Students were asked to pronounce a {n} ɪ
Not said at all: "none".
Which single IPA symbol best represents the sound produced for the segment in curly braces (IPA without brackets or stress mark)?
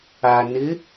n